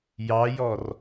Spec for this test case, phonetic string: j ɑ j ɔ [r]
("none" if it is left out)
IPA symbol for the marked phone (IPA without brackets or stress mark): r